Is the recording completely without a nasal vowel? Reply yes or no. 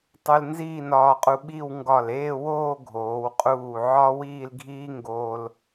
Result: yes